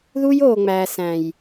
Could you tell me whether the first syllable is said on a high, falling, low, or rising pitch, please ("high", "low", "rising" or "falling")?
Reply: high